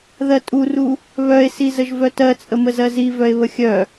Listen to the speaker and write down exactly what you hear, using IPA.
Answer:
ð ɜ tʼ u r u | β œ e̯ s i z ə ʒ v œ t ɜ t͡sʼ ə m ə z ɜ z i v œ e̯ β ə xʲ œ

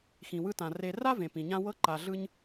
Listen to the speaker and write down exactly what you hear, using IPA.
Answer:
x ĩ˨ w ɯ˦ t ã˨ r e˨ r a˥ v ẽ˩ p ĩ˩ ɲ ã˦ w ɤ˦ ǃ a˨ ɮ ɯ˦ ɲ

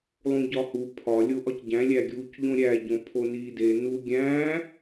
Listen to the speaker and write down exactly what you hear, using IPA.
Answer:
lˠ ũ ɟ ɒ h u pʰ ɒ lʲ o ʔ ɒ c ɟ æ̃ lʲ æ ɡʲ uː c ʎ õ ɾʲ æ ɟ õ pʰ o n iː d e n u ɡʲ æ̃ː

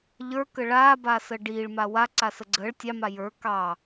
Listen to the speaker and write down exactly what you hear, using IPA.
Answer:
ʎ ə˞ k ə ɭ aː b aː s əː ɖ iː ɭ m a w a ǀ a s ə ɡ͡ǀ əː ɭ tʲ ɑ m a j ə˞ k ɑ

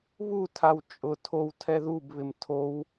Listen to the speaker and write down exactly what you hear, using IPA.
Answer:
β u tʰ a w t͡ʃʼ ʊ tʰ o w tʰ ɛ ð u b β ɪ m tʰ o w

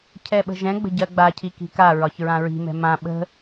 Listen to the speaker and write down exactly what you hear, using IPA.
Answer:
cʰ ɛ ɓ ə̤ ʒ ɛ̃ ɡ͡b ə̤ ɟ ɜ ɡ͡b a cʰ i k i̤ k a ɹ ɒ ç ɹ ã ɹ i̤ m ɛ̤ m ã ɓ ə̤

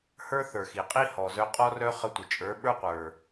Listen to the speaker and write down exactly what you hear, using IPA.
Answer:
h ə˞˦ θ ə˞˨ x i˨ qʼ i˦ h ɔ˨ z œ˧ qʼ ɔ˦ r œ˦ χ ə˧ tʷ ə˨ t͡ʃʼ ə˞˨˦ ɓ ə˞˦ qʷ ə˞˨

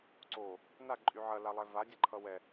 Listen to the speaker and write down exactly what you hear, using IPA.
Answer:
ǀ o | n a ǃʼ y ʕ ɐ l a lˠ ɛ v a dʲ ɐ ǃʰ ʌ w ɛ

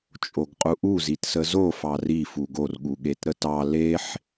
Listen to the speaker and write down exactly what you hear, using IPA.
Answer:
t͡ʃʼ o ɡ qʼ u ʔ u z i t s ə z o f ɑ r i f u ɡ o r ɠ u ɠ e t ɾ ə t ɑ l e ħ

